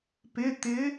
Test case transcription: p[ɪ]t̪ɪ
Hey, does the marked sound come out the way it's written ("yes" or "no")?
yes